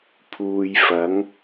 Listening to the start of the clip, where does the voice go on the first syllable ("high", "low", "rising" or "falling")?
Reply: low